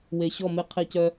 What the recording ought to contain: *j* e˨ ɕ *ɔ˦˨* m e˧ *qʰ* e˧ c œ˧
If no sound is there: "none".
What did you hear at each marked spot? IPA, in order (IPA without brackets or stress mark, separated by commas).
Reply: w, ɔ˦˨, qʰ